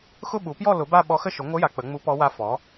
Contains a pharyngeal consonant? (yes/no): no